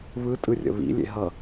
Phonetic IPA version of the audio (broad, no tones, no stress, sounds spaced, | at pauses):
β ɯ tʼ ɯ rʲ ə̰ β ḭ lʲ ḛ ɦ ʌ